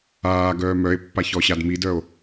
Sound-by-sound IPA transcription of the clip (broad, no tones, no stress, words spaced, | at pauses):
aːɡœː mœe̯pːa çɔɕadmidœo̯